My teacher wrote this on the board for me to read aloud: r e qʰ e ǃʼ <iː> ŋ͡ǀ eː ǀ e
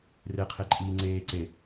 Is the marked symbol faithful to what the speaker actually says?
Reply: yes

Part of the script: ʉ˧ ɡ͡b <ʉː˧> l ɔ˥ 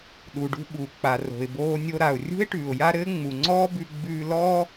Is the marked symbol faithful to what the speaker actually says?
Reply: yes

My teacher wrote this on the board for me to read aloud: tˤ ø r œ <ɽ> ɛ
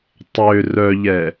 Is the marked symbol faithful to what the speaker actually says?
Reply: no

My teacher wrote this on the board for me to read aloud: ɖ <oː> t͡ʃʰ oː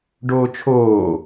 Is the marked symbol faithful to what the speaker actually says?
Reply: yes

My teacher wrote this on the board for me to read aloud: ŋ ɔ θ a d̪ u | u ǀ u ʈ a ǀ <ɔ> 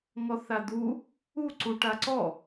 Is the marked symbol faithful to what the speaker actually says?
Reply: yes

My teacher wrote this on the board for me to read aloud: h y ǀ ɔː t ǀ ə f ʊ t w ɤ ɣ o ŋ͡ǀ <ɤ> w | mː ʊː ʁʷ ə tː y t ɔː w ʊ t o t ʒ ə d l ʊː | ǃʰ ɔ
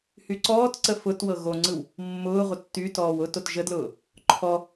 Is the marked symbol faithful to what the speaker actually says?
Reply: no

